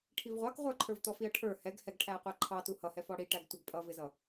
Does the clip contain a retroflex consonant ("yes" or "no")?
yes